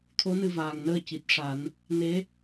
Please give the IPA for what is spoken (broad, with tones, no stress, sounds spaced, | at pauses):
t̪ʰ o˧˥ n ɨ˧ v aː˨˩ ŋ n əː˧ c i˨˩ t̚ ʂ a˨˩˦ n | n e˧˥